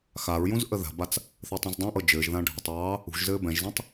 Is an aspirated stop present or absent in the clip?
absent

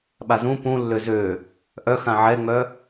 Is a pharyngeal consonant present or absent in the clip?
present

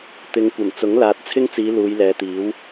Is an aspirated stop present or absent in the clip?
present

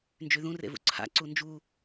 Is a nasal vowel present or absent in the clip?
present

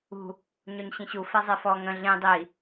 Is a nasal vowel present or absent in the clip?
present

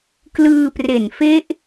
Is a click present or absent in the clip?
absent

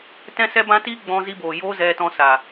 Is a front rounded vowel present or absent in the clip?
absent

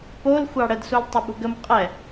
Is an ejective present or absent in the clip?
present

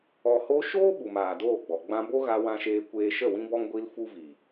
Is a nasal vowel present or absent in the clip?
present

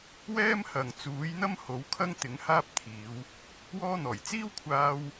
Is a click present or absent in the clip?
absent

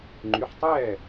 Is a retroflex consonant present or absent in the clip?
absent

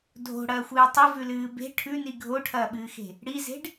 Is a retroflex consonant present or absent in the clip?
present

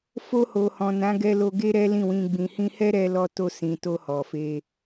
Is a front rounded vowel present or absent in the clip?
absent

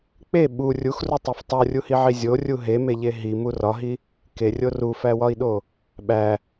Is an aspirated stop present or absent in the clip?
absent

